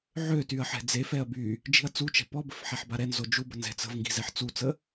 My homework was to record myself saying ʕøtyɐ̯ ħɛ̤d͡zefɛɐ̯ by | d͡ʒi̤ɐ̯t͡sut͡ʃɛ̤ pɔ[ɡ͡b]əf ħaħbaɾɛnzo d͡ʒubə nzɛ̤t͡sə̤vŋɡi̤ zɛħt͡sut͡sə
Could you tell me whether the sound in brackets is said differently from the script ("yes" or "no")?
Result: yes